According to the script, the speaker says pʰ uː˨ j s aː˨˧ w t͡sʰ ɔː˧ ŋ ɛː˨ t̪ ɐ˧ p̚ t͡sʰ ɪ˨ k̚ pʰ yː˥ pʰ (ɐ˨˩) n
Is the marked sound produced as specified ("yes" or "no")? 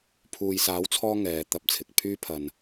no